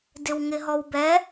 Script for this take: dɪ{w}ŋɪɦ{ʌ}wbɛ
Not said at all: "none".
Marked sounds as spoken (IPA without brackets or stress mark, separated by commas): w, ɔ